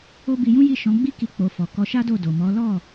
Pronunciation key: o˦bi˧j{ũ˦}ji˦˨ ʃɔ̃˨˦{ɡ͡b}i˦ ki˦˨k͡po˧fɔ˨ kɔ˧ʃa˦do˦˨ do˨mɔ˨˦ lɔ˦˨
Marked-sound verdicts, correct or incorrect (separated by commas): correct, correct